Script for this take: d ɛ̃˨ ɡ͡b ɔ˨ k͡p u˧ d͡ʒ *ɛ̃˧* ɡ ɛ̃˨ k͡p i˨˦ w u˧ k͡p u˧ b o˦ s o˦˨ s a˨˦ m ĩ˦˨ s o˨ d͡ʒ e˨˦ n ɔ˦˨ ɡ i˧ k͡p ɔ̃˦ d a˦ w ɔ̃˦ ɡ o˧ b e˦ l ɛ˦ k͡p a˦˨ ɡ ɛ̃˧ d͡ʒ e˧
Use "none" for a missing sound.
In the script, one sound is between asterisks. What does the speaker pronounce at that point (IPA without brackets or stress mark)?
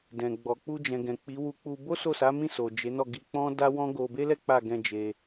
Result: ɛ̃˨